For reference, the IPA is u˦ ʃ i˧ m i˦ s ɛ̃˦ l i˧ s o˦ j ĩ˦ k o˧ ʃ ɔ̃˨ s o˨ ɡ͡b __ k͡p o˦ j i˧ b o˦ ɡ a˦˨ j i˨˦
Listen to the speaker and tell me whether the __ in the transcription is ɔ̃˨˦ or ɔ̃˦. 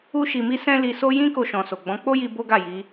ɔ̃˨˦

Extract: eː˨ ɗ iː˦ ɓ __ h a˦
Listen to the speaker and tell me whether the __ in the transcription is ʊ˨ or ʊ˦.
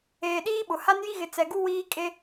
ʊ˨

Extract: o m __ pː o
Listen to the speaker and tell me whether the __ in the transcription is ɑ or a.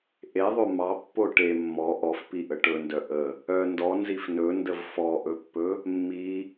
ɑ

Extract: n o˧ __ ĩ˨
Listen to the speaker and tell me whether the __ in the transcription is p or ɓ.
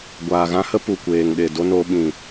ɓ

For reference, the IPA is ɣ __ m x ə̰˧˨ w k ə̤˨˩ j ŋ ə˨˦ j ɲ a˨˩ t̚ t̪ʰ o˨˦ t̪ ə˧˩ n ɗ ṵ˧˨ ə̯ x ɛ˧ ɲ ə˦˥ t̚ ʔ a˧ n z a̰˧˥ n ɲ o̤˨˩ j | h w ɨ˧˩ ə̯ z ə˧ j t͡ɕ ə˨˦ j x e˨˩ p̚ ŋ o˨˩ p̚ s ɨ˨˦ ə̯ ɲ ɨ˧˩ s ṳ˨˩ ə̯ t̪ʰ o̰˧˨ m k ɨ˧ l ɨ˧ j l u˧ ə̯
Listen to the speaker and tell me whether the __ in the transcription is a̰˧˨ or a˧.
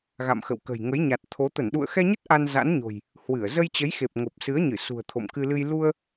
a̰˧˨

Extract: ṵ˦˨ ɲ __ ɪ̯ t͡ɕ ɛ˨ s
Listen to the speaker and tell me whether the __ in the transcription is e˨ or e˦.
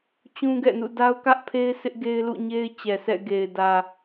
e˦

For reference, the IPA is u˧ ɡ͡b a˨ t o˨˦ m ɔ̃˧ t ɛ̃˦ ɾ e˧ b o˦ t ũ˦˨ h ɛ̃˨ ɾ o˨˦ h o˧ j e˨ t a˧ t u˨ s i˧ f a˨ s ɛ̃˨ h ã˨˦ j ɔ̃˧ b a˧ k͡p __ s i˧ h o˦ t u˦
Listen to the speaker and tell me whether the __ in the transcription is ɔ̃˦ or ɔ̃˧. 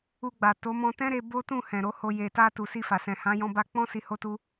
ɔ̃˦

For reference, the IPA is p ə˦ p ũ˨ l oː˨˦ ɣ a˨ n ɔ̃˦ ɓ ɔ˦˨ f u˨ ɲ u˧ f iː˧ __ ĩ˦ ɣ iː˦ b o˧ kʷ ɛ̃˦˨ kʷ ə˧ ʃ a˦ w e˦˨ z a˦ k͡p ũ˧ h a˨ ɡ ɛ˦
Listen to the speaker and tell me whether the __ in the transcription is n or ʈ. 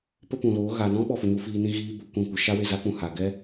n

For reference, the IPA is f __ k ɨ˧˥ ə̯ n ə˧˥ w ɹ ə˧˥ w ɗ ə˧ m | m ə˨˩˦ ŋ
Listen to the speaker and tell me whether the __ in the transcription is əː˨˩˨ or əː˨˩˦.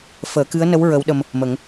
əː˨˩˦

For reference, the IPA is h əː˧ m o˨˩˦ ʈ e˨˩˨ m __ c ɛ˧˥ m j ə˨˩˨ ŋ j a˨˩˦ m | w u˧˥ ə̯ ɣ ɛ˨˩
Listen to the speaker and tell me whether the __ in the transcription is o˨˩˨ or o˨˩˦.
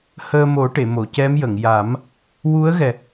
o˨˩˨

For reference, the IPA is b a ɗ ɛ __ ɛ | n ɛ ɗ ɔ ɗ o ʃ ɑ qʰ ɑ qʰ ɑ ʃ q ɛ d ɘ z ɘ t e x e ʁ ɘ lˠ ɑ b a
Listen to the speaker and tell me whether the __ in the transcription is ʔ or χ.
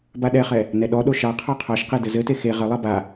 χ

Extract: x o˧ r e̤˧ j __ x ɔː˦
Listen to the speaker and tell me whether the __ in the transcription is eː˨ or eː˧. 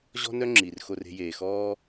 eː˨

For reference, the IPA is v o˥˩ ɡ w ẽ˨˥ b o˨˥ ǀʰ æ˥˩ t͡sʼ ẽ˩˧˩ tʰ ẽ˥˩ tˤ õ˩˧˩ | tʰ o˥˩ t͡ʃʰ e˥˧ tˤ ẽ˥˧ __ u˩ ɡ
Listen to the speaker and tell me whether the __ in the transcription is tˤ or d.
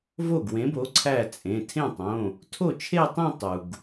tˤ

